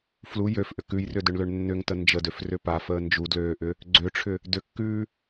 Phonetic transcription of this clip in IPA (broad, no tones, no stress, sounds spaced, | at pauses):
f l u j ø f ʔ ʏ k ʉ j r ʏ d ʏ ɳ l ø ɳ nː ʏ ŋ t ə n d͡ʒ ə d ø f r ʏ p a f əː n d͡ʒ u d l øː ʔ ʏ | ɡ͡ǀ ø ʈ͡ʂʰ ʏ | d ʏ kː ʉː